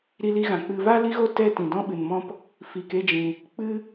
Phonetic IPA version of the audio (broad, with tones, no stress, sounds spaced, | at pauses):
ɾ i˧ l i˧ ɣ ã˨ k͡p ɨ˧ v a˦ l i˦ ɣ o˦ t ɛ˦ t ĩ˨ d ɔ̃˦ ɓ ɨ˨ n m ɔ̃˦ p | f i˨ k e˦ d͡ʒ ĩ˨ | k͡p ɨ˦